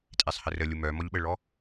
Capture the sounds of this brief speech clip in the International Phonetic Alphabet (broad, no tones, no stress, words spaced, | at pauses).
tʼesˤhərəlʲu mœmɔʎɓəɭɔ